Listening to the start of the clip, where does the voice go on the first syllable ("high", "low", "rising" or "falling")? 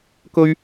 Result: high